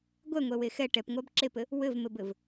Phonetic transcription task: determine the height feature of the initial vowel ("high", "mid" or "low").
mid